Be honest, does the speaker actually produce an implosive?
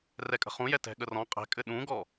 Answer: yes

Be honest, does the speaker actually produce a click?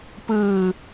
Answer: no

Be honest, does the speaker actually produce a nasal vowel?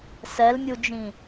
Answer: yes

